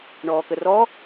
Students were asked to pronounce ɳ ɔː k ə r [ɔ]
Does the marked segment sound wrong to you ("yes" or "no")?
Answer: no